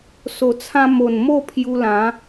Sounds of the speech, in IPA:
so˨˩t͡sʰã˧mo˨˩n mo˥˧pʰju˧ lã˨˦

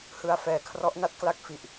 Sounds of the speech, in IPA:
hɯ˧a̯fɛː˨˩ kʰrɔ˦˥ʔna˦˥t̚kla˥˩k̚ fi˨˩ʔ

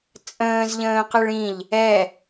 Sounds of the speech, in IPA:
t͡sʼə̃ːzʎə̃ːqɨɭ ĩʎ | ɛ

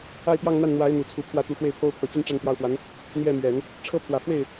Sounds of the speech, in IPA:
a˥˧ɪ̯t̪jɑ˥˧ŋn̪a˥˩nn̪wa˧˥ɪ̯ n̪u˨˩t͡sʰu˧˥pʰwä˥˩ t̪u˧˥xwe˥˩ɪ̯pʰo˥ʊ̯ pʰɤ˨˩t͡ɕy˥˧n ʈ͡ʂa˥˧nt̪jɑ˥˩ʊ̯fwa˧˥n | n̪jɛ˥˩mɥɛ˨˩˦n | ʈ͡ʂʰɤ˥pʰwä˨˩ fwe˥˩ɪ̯

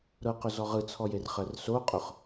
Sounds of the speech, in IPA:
ɾɤqʊzɔ ʁɯt͡sʰɔjer χɜrsoqʼʊχ

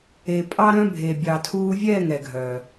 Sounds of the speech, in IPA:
e˨ pʼɑ˦ɾœ̃˦ bʱe˨ bʲɑ˨tʰuː˧vʲɛː˦˨ŋ ɛ˨ɡʱœ˨

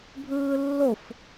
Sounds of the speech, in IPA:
bʱɯːlːof

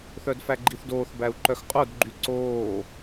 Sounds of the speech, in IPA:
θœdfæɡ͡ǃiθdoːθ bæu̯ǃœxqʼod ɡ͡ǃyǀoː

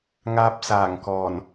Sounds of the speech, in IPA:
ŋaː˧p̚saː˨˩ŋkɔː˨˩n

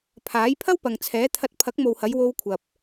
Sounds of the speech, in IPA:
pʰaː˨˥jpʰɐ˥w pɐ˨ŋt͡sʰɛː˨˥t̪ʰɐ˧t̚ pʰɐ˨˥k̚mo˨whɐ˨˧j wo˧wkʷʰɐ˨p̚

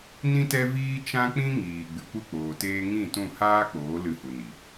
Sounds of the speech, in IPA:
nĩ˦tɛ˦viː˦ t͡ʃã˦k͡pĩ˦ ŋiː˨ ɡ͡bɨ˨˦kʷɨ˦˨k͡poː˨teː˦ ŋĩ˦˨tũ˦˨ haː˦k͡poː˨˦ lɨ˧hu˨ni˨

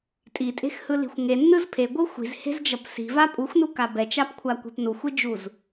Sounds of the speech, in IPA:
tʼitʼe̤xhɯli̤xʷ ŋenːɯz pʰeɡʷɯ xʷi̤zhe̤zd͡ʒʌp si̤va pʼuxʷnuka bɛt͡ʃapkʷʰakʷe̤p nuxʷid͡ʒuz

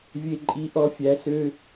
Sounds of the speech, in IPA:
vʲe˧ǃʼi˧˥ʔɔ˧˥ fʲæ˧˥sø˥

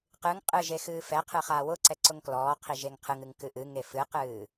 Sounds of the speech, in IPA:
qɨŋ qʼɨʒe xɨːfɛqʰɨ χaːwʊǀɛ ǀʊŋklɔːqʰi ʒeŋqʰɨŋɨŋ kɨʔɨŋe fɨqɨː

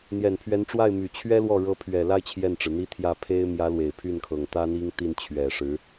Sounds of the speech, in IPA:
n̪jɛ˨˩npʰɥɛ˧˥nʈ͡ʂwa˥˩ɪ̯my˨˩ t͡ɕʰɥɛ˥lwɔ˥˩ ɻɤ˧˥pʰɥɛ˨˩la˥˧ɪ̯ t͡ɕʰjɛ˥˩nʈ͡ʂɻ̩˩n̪i˥t̪ʰjä˥˩ pʰe˥ɪ̯ mjä˧˥lwe˨˩ɪ̯pʰy˥˩nkʰɤ˨˩ŋ t̪ä˥n̪i˥ŋt̪i˥˩n t͡ɕʰɥɛ˨˩ʂɻ̩˧˥

